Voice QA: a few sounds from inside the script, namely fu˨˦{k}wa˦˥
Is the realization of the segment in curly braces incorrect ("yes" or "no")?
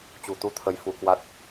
no